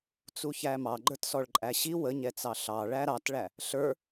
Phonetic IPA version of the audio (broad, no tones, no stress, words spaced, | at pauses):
t͡suçæmɑ ɡ͡ǃə˞tsɔɭǃʼæɕi wəɲɛt͡sɑ ɬɑ ɭæɾɑtɭæ | ɬə˞